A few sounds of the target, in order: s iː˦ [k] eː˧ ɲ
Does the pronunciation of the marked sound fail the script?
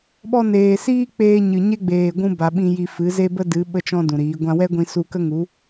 yes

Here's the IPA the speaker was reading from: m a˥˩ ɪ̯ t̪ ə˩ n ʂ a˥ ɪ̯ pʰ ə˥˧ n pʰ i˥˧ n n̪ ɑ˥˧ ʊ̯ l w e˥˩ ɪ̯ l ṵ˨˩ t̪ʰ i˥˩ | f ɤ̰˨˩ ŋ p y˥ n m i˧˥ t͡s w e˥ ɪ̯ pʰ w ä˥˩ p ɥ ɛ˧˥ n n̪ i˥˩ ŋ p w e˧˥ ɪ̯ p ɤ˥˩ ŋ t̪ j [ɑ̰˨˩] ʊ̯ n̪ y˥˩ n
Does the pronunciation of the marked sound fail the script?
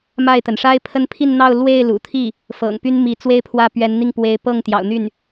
no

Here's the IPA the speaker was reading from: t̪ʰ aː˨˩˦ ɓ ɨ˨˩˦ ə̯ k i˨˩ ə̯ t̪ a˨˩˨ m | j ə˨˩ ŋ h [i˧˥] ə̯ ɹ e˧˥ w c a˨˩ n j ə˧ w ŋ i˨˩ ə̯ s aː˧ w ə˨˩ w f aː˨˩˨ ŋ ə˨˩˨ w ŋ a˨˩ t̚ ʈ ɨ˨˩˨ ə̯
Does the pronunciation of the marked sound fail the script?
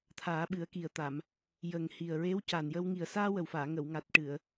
yes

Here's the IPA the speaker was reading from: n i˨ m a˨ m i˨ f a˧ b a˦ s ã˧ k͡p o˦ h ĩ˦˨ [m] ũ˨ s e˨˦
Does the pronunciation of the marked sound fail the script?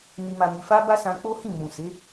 no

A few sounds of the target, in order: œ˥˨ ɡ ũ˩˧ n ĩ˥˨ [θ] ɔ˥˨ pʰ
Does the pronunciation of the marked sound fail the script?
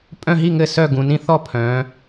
no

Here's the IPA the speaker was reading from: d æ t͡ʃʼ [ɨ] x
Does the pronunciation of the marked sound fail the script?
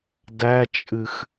no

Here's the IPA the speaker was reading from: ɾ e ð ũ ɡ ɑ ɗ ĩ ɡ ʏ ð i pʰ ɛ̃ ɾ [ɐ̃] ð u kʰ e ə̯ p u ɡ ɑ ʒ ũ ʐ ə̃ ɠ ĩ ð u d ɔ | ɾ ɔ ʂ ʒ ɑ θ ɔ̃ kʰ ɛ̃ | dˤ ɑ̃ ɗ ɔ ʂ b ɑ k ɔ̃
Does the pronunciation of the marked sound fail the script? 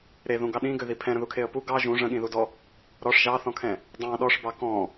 yes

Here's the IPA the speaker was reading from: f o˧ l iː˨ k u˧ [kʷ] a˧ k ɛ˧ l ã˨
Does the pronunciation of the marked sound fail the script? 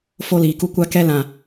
no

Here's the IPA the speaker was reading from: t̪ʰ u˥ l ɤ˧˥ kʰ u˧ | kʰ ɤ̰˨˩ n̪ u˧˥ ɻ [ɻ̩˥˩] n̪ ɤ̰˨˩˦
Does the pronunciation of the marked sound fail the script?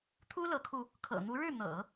no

